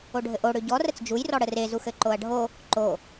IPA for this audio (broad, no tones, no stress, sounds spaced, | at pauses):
o ɖʱ ɘ ʔ o ɽ ʏ ɟ ɔ r ə t͡s d͡ʒ u j r ɔ ɽ ə r e z u x ɘ ǃ o ɐ̯ ɖʱ o | ǃ o